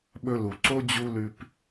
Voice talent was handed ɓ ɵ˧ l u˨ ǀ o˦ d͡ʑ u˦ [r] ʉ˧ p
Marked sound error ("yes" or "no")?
yes